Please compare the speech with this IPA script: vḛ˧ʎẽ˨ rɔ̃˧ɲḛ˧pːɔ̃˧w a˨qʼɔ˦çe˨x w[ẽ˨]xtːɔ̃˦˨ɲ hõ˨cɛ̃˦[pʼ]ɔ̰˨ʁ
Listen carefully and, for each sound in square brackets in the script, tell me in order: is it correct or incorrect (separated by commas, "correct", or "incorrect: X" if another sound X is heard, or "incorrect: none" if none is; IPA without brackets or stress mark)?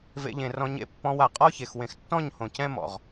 correct, incorrect: m